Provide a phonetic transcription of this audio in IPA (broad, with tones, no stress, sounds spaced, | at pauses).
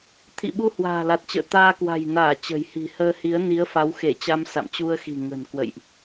t̪ʰ ḭ˧˨ ɓ u˧ h w a̤ː˨˩ l a˨˩ t̚ t͡ɕ ə̰ː˧˨ t̪ aː˧ k w a̤˨˩ j n aː˧˩ t͡ɕ ə̤˨˩ j h i̤˨˩ h əː˧ h i˨˦ ə̯ n i˨˦ ə̯ f a˨˦ w x e˧˩ t͡ɕ a˧ m s a̰˧˨ m t͡ɕ u˧ ə̯ x i̤˨˩ ŋ ə̤˨˩ n k w ə̰˧˨ j ʔ